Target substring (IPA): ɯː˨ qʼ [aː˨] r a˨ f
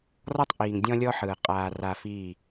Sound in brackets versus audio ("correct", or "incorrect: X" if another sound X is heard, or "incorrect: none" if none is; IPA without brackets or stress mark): correct